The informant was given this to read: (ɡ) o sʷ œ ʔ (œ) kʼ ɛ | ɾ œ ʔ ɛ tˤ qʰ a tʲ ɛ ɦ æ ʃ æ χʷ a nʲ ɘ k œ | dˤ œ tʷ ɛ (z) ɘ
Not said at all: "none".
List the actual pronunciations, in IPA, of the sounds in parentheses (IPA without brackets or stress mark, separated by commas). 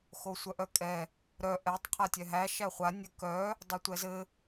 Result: x, œ, z